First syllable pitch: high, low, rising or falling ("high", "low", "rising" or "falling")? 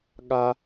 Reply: high